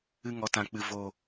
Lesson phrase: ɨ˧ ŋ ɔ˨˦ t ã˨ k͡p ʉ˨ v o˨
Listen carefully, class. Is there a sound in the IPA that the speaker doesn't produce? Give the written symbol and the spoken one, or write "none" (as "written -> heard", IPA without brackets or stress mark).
ʉ˨ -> ɨ˨